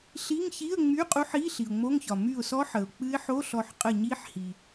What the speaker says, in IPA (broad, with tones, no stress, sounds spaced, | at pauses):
ɬ i˧˥˧ ŋ ç i˧˥˧ ə̯ ŋ͡m y˧˥˧ qʼ u˧˥ ħ i˧˥˧ ɬ i˩ ʊ̯ ŋ͡m o˧˥˧ ŋ ç ɒ˩ m y˧˩ ʊ̯ s ɔ˧˥ ħ ə˩ ʊ̯ k͡p ɨ˧˥ ɪ̯ ħ o˧˥˧ ɬ ɔ˧˩ ħ qʼ ə˧˩ ɲ i˧˥ ħ h i˩